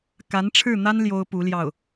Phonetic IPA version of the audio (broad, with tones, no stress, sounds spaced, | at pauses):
k a˧˥ n ʈ͡ʂʰ ɻ̩˥˩ n̪ a˥ n l j o˥ ʊ̯ p u˧˥ l j ɑ˥˩ ʊ̯